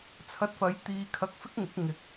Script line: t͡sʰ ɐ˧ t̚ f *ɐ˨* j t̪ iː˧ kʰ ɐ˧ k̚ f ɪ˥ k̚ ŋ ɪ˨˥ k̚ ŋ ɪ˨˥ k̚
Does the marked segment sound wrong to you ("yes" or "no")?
yes